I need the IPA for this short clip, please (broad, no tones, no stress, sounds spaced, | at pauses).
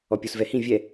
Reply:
ɔ pʲ u s v ɛ h ĩ vʲ ɛ